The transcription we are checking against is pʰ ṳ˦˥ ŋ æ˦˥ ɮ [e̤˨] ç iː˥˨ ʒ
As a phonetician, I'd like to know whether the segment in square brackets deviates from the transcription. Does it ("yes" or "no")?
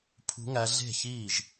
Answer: yes